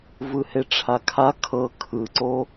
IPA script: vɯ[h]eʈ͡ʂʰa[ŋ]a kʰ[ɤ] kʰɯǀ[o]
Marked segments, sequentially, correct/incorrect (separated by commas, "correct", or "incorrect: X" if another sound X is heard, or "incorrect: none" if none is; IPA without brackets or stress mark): correct, incorrect: kʰ, correct, correct